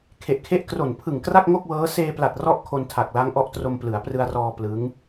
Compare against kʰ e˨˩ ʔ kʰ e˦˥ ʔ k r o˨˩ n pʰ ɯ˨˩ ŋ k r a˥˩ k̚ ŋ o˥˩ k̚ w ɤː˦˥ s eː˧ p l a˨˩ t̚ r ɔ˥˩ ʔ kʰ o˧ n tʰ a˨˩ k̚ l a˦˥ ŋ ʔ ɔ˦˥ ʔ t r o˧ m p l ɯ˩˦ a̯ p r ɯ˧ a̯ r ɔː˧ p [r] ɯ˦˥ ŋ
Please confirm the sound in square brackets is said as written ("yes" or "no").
no